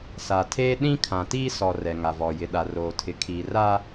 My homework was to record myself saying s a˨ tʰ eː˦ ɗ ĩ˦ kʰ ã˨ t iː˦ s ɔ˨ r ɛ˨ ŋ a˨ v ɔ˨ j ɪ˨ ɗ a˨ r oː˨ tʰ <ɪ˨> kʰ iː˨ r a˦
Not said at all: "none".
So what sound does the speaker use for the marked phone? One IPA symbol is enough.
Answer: ɪ˨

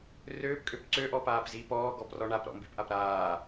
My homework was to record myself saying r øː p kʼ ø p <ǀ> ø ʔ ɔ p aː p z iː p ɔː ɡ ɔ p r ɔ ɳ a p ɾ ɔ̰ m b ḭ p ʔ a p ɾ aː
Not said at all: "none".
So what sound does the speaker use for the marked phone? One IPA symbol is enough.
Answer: ǀ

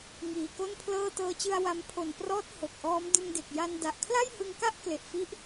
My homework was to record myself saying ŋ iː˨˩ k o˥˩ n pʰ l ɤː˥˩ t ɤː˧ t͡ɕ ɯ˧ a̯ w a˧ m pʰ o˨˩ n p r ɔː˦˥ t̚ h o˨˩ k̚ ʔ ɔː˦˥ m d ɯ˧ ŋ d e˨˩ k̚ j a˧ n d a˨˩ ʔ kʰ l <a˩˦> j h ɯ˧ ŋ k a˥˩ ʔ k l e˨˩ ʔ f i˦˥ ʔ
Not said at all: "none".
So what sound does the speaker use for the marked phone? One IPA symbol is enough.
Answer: a˥˩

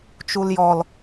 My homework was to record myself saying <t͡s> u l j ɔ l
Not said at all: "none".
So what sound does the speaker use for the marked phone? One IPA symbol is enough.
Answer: t͡ʃ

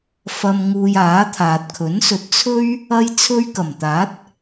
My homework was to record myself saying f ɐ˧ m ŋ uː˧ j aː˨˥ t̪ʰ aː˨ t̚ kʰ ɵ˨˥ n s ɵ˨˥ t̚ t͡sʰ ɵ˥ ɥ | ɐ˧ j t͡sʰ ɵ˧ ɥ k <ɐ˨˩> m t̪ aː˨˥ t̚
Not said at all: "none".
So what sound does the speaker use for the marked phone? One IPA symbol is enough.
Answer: ɐ˨˩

